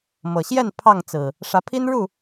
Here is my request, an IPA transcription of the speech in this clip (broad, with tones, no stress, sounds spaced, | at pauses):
m ɤ˨˩ ɕ j ɛ˥˨ n pʰ ɑ˥˨ ŋ t͡s ɹ̩˨˩ | ʂ ä˨˦ pʰ i˦ n ɻ u˥˨